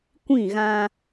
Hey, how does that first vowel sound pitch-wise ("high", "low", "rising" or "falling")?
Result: falling